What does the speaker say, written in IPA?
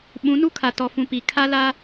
ɓ ũ˨˦ n u˦ kʰ a˨ t ɔ˨ f ũ˨ p i˨ kʰ a˦ l a˦

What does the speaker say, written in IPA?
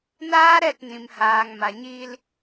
n aː˦ ɾ ɛ˦˨ t n ĩ˨ m h aː˨ ŋ m a˨ ɲ iː˧ l

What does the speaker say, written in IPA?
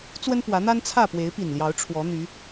t͡s w ə˦ n p w ä˨˦ n̪ a˦ n t͡sʰ ä˥˨ p w e˨˦ ɪ̯ p i˨˩ n l j ɑ˨˦ ʊ̯ ʈ͡ʂʰ w ɔ˨˦ n̪ y˨˦

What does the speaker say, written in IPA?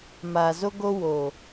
m a˨ z o˦ ɡ o˦ w oː˨

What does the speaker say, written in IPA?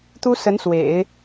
t̪ u˥ s ə˧˥ n s w ḛ˨˩˦ ɪ̯

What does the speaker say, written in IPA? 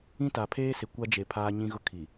ĩ˦ t a˨ pʰ eː˦ s ɪ˨ kʷ a˦ d͡ʒ e˨ pʰ aː˦ ɲ ĩ˦ ɣ ʊ˦ kʰ i˨

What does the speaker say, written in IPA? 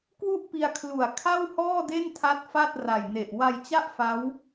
k w u˥˩ ʔ p i˧ a̯ kʰ l u˨˩ a̯ kʰ a˥˩ w h ɔː˥˩ d e˥˩ n tʰ a˦˥ t̚ f a˥˩ t̚ r a˨˩ j n e˨˩ ʔ w a˧ j t͡ɕ a˥˩ ʔ f a˦˥ w

